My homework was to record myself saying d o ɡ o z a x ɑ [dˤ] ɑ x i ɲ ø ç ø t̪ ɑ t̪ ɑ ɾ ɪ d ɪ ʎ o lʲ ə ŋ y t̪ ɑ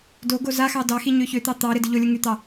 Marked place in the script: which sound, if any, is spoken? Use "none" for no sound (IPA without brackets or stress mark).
d